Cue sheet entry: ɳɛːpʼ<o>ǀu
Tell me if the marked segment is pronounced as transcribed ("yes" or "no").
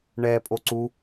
yes